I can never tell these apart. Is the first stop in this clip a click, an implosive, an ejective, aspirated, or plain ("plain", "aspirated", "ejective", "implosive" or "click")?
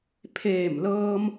aspirated